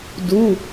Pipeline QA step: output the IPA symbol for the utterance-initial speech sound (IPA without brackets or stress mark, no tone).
d